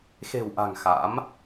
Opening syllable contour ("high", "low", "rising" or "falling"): low